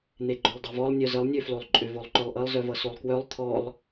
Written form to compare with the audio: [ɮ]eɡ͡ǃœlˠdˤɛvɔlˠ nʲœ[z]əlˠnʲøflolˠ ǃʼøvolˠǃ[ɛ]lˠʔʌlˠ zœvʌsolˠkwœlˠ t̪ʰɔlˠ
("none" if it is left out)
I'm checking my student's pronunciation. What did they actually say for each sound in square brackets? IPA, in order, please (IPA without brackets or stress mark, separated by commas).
n̪, z, œ